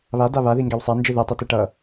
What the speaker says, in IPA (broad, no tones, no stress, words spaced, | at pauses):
βada βaðiŋɡɛw sˤand͡ʒɯ ðɛtˤiti ʈʌ